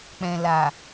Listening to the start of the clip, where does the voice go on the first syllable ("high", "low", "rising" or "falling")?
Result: low